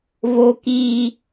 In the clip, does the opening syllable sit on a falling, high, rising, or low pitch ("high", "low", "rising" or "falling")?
high